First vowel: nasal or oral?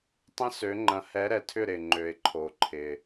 nasal